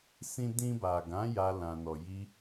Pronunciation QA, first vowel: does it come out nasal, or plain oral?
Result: nasal